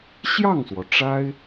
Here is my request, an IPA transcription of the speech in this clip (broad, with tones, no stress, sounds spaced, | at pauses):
ɕ j ɑ˥˩ ŋ s w ɔ˩ ʈ͡ʂ a˥ ɪ̯